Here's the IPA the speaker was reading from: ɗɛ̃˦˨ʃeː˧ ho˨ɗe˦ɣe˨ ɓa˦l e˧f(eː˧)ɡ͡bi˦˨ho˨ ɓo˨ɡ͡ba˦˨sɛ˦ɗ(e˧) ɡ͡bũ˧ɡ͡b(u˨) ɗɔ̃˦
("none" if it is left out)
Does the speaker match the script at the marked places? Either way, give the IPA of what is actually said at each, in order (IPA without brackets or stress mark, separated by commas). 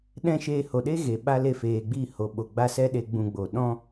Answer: eː˨, e˧, o˨